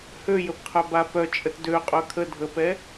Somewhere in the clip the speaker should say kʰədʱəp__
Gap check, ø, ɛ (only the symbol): ɛ